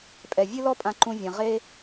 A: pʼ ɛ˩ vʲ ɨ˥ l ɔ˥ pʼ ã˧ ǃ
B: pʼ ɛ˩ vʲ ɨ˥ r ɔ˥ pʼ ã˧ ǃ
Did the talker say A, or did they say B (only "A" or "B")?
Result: A